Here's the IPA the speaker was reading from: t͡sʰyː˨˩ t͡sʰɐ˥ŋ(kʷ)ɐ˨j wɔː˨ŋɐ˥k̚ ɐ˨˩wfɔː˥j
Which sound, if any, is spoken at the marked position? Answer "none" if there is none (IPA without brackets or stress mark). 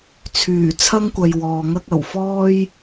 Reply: kʷ